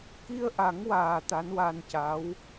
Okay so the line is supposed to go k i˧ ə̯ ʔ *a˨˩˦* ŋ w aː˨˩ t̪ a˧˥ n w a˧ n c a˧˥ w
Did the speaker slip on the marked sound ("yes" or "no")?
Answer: no